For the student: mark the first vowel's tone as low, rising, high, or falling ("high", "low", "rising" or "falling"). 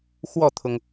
falling